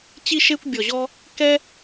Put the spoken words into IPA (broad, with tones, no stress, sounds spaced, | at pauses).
t͡ɕ i˧ ʃ e˧ kʷ bʲ ɔ˨ ʑ ɔ˧ | k ɛ˦